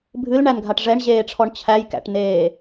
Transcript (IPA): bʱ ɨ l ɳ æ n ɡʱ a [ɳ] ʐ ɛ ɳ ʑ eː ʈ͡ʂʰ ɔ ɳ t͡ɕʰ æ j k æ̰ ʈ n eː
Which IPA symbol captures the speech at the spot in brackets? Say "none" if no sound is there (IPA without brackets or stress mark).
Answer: ʈ